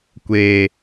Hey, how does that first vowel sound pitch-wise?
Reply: low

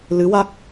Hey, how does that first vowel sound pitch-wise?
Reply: rising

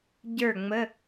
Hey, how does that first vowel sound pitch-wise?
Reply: falling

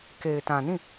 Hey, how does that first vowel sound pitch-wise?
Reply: low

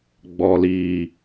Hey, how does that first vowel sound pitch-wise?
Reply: low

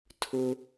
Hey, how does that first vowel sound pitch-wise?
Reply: low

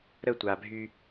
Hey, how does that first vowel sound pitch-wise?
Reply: falling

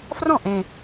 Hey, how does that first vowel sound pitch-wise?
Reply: falling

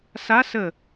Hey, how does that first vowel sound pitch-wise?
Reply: rising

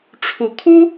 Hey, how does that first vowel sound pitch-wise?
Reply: low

